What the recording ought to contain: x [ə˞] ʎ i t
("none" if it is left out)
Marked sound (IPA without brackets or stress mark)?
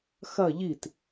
ɐ